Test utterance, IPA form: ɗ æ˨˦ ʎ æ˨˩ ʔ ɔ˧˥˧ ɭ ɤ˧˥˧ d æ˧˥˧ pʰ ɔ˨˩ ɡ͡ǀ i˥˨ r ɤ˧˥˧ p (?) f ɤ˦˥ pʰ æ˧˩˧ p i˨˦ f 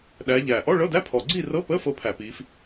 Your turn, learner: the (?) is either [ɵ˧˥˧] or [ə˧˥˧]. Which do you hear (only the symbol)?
ə˧˥˧